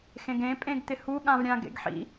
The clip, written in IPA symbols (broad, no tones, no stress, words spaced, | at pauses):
xẽɡẽ pʼẽɡt̪ɪhu ɠãvɾʲã ɡḛɡħḭ